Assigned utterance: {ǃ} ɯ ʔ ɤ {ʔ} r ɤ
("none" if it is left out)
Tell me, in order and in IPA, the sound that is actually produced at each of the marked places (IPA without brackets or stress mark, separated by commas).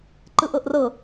ǃ, ʔ